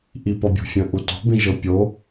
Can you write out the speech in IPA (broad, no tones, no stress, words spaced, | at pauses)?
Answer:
ʔipɒbʲo̤fʲə̃ ʔutɔ̤ bĩʒɤpʲo